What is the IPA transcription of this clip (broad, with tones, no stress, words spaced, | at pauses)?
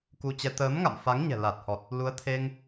ku˧t͡ɕɛ˧ t̪əː˨˦mŋa̰˧˨m fa˨˦ŋɲɛ̤˨˩la˨˩t̚hɔ˨˩t̚ | lu˨˦ə̯t̪ʰe˧ŋ